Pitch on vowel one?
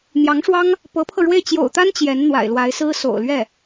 rising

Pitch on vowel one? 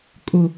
low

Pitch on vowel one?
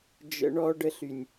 high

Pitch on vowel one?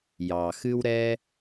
low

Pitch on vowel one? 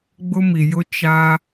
high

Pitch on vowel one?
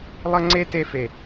high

